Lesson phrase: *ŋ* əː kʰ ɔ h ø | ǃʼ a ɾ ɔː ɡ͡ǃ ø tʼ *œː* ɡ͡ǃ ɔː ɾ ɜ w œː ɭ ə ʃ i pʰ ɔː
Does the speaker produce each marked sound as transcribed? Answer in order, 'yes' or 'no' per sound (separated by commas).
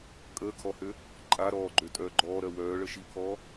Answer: no, yes